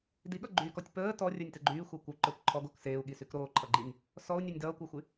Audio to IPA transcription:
d i ɠ ʌ ɡ͡ǃ yː k ɔ tʲ p əː t ɔ rʲ ə˞ nʲ t ə ɡ͡ǃ yː xʷ ʌː kʷ o ǃ ə˞ kʷ ǃʰ ɔ ɡ o k s eː u̯ ɠ i s y k ɾ oː ǃʰ ʌ ɡ͡ǃ i nʲ | s ɔ u̯ nʲ ə˞ nʲ d ʌː kʷ əː xʷ y

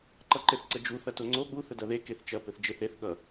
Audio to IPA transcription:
ǃ ʌ ǃ ɘ θ ǀ ə d͡ʒ u θ ɐ t o ŋ͡ǀ o ɠ u θ ə d ɐ ð e k e θ t͡ʃ ɐ p ɘ θ d͡ʒ e θ e θ ɠ ʌ

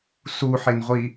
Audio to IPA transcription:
s u ħ e n ʁʷ i

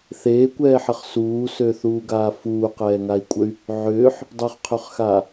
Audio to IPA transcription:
θ eː kʷ ɛː ħ ə χ s uː s ø θ uː ɡ aː f uː q ɛː ŋ a i̯ kʷʼ ə y̯ | ʕ ʏː ħ | dˤ ʏ χ qʰ ø χ x aː

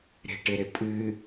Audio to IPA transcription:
ɾ e̤ ʈ ɪ ɾ ɪ pʼ ɨ

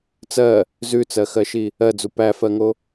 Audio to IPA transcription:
t͡s ɜ | z ʉ t͡s ɜ x ɜ ʃ i | ɜ d͡z u p æ f ɜ ŋ o

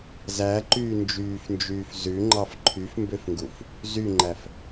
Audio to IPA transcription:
z æ ǃ yː n d͡ʒ yː f n d͡ʒ yː f z ʉ ŋ͡ǃ ɑ f ǃʰ y f m b ø f ŋ ɡ u f | z y ŋ͡ǃ æ f

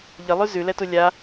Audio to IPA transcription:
ʎ ə lˠ ʉ z ʉ l ɛ t u lʲ a

